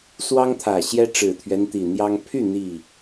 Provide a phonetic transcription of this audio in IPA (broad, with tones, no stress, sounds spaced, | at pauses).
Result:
s w ɑ˦ ŋ t̪ʰ ä˨˩ ɕ j ɛ˦ ʈ͡ʂ ɻ̩˨˩ t̪ʰ ɥ ɛ˦ n t̪ i˨˩ n̪ j ɑ˦ ŋ pʰ y˥˨ n̪ i˥˨